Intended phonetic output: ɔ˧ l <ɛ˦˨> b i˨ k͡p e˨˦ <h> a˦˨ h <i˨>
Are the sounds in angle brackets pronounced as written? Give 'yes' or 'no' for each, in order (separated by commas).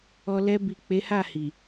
no, yes, yes